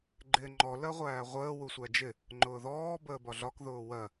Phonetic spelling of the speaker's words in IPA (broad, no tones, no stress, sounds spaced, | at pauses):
ɡ͡ǃ ɪː ŋ͡ǃ ɔ l ɜ ʁʷ æː ʁʷ əː w u sʷ æ d͡ʒ ɪ | ŋ͡ǃ ʊː ð ɔː b əː b ɒ ɮ ɒ k ð ʊː w ɜ